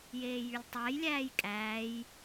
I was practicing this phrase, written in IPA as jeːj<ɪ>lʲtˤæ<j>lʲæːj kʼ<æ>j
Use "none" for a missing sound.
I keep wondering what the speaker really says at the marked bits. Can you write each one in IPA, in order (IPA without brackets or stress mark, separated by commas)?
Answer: y, j, æː